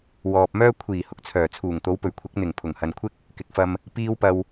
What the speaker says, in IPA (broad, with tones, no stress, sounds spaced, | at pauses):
w ɔː˨ p̚ m œː˥ kʷʰ iː˨˩ h ʊ˨ k̚ t͡sʰ œː˨˩ t͡sʰ uː˨˩ ŋ t̪ o˨˥ w p ɵ˨˩ ɥ kʷʰ ɪ˨˥ k̚ n̪ ɪ˨˩ ŋ pʰ ʊ˨˩ ŋ h ɐ˨ n kʷʰ ɪ˥ k̚ | k ɪ˨˥ k̚ f ɐ˧ m | p iː˥ w p ɐ˧ w